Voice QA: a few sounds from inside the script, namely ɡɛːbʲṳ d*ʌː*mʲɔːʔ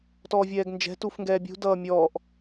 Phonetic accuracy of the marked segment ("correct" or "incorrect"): correct